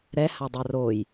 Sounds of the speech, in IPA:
ɾ ɛ h a dˤ a r o j

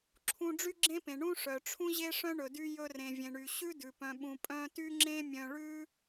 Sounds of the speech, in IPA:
ǁʰ ũ˧ ɖ͡ʐ y˦ ɡ͡ǁ ẽ˦ p ẽ˨ ɳ ũ˦ ʂ œ˨ ʈ͡ʂʰ ũ˦ ʑ e˦ ʂ œ̃˦ ɳ ɵ˨ d y˧ j ɵ˧ r ẽ˨ vʲ ẽ˨ ɳ y˨ ɕ ʉ˦ d ʉ˨ p œ̃˨ ɓ ũ˨ pʼ œ̃˧ t y˦ ŋ͡ǁ ẽ˦ mʲ œ̃˧ ɭ ʉ˦

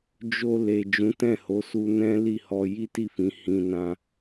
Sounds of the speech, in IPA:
d͡ʒ o˧ l e˨ d͡ʒ ũ˨˦ t ɛ̃˦˨ h o˨˦ s u˧ n ɛ̃˦ l i˦˨ h ɔ˧ j i˦ t i˦˨ f ĩ˨˦ h ĩ˧ n ã˧

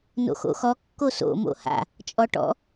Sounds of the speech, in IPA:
n o̰ x o̰ x ɔ kː o s o̰ m o̰ h a̰ | t͡ʃʼ ɔ ʈ ɔ̰

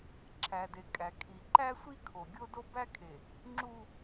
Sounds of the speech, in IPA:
ǁʰ æ˨ d e˨ kʼ æ˨ kʰ i˨ ǃ æ˦ sʷ i˦ kʰ o˨ ɡʲ o˦ d o˦ b æ˦ kʰ e˨ | ŋ͡ǁ u˦

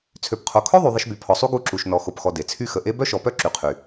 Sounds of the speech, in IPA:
t͡sʰ ø˨ p qʰ o˨ kʰ œ˦ ðˤ y˨ ðˤ ə˧ ʃ b y˨ pʰ ɔ˨ sˤ u˦ ɡ u˧ ǁ u˨ ʃ n ɔ˨ x o˧ p x ɔ˧ d e˨ t͡sʰ y˦ x ə˨ ʔ e˦ b œ˦ ʃ ɔ˨ p œ˦ ǁ y˨ qʰ y˨

